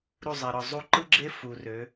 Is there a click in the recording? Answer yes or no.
yes